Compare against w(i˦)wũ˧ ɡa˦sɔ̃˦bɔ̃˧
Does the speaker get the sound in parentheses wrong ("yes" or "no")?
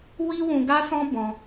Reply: no